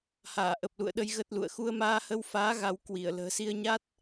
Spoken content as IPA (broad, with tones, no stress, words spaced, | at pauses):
haː˧˩ʔə˨˩p̚lṵ˧˨ə̯ɗə˧j ɣə˦˥t̚lṵ˧˨ə̯ xu˧ə̯maː˧hə˧wfaː˨˦ ɣa˨˦w kwi˧˩ə̯ lə̤ː˨˩si˧ə̯ɲa˦˥t̚